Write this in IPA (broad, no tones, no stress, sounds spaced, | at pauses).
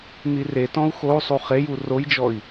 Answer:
n̪ i r e t ɔ̃ u̯ x o u̯ sˤ u χ e j u r o j d͡ʒ ɔ i̯